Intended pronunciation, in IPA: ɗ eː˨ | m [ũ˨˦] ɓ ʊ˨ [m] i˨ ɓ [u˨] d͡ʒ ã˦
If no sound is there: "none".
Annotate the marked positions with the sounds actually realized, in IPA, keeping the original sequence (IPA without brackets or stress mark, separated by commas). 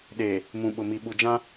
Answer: ũ˨, m, u˨